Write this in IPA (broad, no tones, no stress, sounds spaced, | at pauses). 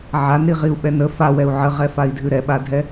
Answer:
ʕ a n ɾ i ʁ i u̯ ɓ ɛ n ə f a w ɛ u̯ ʕ ə ʁ ɛ f a i̯ dʱ ʉ ɾ ɛ ɓ a dʱ ɛ